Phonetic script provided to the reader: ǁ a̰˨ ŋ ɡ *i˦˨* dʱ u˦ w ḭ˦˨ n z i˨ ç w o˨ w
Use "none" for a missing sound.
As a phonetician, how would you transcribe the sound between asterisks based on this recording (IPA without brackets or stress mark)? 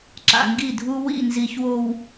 i˦˨